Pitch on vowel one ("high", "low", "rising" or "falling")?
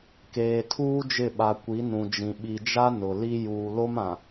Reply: low